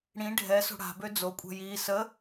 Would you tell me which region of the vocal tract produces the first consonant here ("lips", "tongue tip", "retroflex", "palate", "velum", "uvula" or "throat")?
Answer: retroflex